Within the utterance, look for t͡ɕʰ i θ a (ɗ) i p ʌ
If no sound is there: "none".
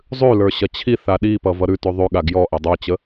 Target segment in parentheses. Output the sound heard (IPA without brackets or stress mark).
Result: ɗ